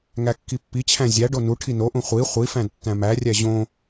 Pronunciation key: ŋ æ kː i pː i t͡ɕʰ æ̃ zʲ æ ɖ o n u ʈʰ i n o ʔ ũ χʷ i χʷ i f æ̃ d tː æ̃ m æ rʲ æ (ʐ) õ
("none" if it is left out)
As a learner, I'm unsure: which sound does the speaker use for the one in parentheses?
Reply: ʑ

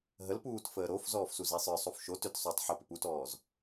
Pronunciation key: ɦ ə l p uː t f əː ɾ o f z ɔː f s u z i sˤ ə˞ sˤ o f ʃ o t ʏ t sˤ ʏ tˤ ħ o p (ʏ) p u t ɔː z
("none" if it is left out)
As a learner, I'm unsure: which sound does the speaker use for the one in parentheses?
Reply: ʏ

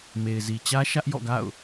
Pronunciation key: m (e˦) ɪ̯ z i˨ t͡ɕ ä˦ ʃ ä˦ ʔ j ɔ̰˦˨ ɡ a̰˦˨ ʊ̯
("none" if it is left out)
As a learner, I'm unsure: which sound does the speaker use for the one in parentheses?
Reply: e˨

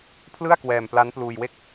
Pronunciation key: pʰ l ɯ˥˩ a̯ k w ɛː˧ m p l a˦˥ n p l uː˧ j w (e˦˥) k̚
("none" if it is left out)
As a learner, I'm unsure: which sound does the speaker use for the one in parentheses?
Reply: e˥˩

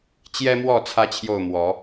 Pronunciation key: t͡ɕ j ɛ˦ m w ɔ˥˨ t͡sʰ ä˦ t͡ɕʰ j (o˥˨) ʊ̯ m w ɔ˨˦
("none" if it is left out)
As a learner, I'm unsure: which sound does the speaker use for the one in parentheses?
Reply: o˥˨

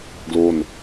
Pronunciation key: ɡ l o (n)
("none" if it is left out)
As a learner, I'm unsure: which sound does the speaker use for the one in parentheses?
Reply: n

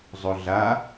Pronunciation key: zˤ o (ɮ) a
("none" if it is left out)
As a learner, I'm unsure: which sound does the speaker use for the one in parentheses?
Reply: ɮ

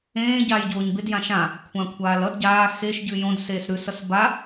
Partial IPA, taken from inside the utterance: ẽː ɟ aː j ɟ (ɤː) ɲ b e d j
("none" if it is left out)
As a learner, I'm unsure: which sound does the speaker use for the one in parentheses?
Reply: oː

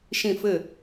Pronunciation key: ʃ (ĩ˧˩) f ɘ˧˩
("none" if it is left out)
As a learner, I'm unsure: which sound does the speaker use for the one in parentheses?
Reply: ĩ˧˩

